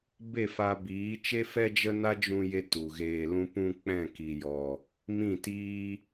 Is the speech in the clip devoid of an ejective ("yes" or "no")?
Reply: yes